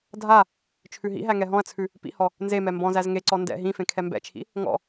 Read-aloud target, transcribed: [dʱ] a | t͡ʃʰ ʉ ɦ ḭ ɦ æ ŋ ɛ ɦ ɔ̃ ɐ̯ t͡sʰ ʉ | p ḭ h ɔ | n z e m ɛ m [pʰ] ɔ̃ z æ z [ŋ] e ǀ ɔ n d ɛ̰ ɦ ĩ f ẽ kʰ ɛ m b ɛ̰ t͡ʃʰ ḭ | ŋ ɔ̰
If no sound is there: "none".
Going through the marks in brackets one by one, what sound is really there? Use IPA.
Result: dʱ, b, ŋ

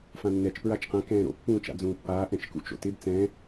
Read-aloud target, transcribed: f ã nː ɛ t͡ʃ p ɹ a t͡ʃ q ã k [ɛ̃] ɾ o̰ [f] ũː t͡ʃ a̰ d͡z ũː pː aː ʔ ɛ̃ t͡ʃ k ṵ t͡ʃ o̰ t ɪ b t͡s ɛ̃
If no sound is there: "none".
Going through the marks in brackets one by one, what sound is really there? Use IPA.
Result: ɛ̃ː, pː

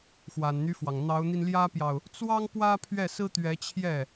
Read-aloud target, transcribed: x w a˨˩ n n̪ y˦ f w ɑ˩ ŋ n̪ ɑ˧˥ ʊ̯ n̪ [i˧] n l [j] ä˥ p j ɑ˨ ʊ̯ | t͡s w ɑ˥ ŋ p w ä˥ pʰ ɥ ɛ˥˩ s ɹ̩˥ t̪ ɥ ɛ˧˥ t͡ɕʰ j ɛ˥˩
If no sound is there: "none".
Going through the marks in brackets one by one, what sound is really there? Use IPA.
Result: i˧, j

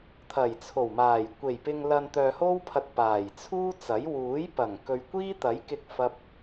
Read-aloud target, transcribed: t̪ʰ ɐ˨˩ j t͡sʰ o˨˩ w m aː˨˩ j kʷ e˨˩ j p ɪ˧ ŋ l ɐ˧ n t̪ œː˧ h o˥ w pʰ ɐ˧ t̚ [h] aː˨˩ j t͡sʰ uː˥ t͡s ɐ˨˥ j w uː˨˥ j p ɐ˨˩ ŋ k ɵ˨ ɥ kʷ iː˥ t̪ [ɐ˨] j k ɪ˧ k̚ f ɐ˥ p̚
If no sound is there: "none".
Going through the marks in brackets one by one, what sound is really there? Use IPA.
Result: p, ɐ˨˥

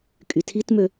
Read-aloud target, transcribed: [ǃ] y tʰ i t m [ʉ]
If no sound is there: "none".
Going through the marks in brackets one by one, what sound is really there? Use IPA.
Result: kʼ, ø

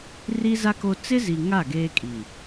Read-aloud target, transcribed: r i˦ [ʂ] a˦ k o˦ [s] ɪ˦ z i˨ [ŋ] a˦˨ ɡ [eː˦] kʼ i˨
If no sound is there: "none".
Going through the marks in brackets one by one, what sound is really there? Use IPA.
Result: z, t͡s, ŋ, eː˦

